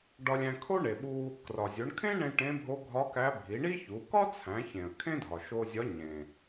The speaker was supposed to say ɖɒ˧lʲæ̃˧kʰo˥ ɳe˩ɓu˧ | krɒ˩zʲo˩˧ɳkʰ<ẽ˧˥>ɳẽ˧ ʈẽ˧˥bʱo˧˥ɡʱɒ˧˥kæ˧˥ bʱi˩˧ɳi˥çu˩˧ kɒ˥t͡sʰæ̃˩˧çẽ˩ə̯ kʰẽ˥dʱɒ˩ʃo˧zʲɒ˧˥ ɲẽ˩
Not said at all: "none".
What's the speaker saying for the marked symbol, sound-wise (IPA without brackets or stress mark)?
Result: ẽ˥